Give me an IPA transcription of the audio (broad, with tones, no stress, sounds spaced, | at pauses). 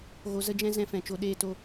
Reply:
ɣ o˧ z ə˦ d͡ʒ ɛ̃˦ z ɛ̃˧ f ɛ̃˨ t͡ʃ o˧ ɗ eː˦ t o˦